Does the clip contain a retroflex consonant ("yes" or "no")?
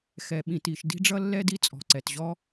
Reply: yes